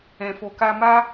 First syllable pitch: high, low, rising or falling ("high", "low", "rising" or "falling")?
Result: low